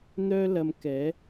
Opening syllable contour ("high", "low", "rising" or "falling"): high